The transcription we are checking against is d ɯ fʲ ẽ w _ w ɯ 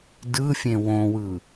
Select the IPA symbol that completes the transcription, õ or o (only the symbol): õ